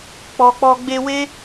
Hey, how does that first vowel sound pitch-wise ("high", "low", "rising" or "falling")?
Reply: low